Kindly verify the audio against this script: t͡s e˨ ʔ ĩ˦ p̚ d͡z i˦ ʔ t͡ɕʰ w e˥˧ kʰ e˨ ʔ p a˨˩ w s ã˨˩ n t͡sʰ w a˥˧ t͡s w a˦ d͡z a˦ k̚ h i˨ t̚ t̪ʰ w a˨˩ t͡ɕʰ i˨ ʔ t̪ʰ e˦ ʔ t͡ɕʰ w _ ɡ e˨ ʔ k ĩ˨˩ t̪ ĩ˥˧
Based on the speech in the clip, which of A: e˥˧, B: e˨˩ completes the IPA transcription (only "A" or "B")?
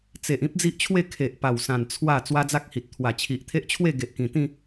A